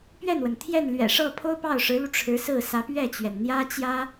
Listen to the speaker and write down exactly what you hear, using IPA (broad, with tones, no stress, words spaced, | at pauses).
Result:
pɥɛ˥˩nwə˩n t̪ʰjɛ˥˩nlɥɛ̰˨˩ ʂɤ˥˩ pʰo˥ʊ̯pɑ˥˩ʊ̯ʂɻ̩˧˥lu˧ ʈ͡ʂʰɻ̩˧˥sɹ̩˥˩sä˧˥ pɥɛ˥˩t͡ɕɥɛ˩n n̪jä˥t͡ɕjä˥